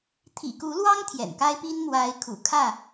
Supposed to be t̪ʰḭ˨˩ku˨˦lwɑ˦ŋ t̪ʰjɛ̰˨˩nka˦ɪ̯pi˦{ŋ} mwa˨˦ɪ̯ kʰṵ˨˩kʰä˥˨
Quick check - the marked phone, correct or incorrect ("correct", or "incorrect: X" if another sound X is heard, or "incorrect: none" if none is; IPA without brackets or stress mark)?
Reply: incorrect: n